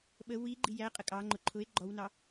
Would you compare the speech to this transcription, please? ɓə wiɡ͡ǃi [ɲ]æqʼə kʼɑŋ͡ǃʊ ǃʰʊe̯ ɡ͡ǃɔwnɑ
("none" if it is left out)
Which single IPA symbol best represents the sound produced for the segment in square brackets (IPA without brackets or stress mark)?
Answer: j